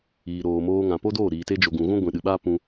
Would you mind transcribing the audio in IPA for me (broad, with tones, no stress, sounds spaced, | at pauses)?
iː˨ ɾ oː˨ m oː˧ ŋ ã˨ p o˦ d oː˦˨ ɾ iː˨ t e˧ d͡ʒ o˨ ɡ ũ˨ ɣ ũ˦ ɡʷ ĩ˨ ɗ ɨ˨ ɓ aː˦ p ũ˧